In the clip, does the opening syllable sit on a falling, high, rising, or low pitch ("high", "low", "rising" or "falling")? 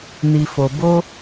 low